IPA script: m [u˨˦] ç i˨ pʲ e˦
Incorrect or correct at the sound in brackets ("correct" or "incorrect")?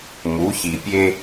correct